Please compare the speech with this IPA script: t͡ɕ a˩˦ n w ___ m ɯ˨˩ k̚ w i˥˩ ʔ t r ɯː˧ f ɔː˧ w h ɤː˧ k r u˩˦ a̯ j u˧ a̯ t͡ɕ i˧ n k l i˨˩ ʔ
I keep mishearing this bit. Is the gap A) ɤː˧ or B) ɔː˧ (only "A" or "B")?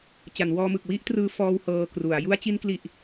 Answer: B